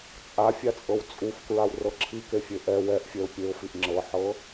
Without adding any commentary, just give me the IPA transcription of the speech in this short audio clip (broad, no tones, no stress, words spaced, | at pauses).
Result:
t͡sʼafʲat͡sʼɤw t͡sʼufkɹawrɤ ǁʰikefʲe ʔɛ wɛʔfʲɛʊ̯ pʲeʊ̯fiʔ ŋ͡ǁɤħɤ